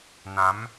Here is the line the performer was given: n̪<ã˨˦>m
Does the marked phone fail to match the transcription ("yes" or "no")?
no